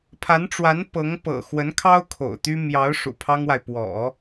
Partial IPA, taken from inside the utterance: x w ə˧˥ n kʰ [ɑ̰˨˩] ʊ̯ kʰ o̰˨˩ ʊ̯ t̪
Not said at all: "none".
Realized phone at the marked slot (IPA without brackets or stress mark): ɑ˥